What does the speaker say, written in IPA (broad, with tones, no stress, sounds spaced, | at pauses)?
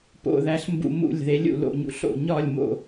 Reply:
p o̰˧˩ ð æ˩˥ ɬ m b ṵ˧˩ m ṵ˧˩ lʲ ð e˩˥ lʲ ṵ˧˩ l o̰˧˩ ɲ ṵ˧˩ ɬ o̰˧˩ ɲ ɒ˧˩ lʲ m o̰˧˩